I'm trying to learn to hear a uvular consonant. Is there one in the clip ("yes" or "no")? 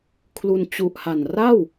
no